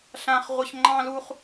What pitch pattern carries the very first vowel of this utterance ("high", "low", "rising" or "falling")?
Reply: high